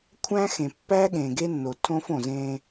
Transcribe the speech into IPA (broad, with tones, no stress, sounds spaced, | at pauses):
kʷʰ æ̃˦ x ẽ˨ pː æ˦ ɠ ẽ˨ ɡ e˦ nː o˨ tʰ õ˦ f õ˨ z ẽ˦